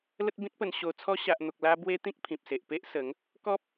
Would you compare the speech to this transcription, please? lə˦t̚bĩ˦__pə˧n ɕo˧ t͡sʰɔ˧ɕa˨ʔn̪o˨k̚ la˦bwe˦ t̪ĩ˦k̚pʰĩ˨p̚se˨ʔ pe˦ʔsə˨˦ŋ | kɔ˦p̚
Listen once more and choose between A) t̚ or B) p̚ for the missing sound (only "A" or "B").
A